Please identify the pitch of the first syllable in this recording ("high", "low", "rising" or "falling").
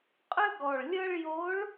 high